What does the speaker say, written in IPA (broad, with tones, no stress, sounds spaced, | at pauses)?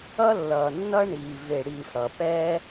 ʌ˥ lː ʌː˨ nː ʌ˥ ɳ iː˨ v e˨ ɽ iː˨ f ɽ ʌ˩ p ɛ˦